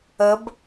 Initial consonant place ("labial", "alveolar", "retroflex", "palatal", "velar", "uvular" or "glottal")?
labial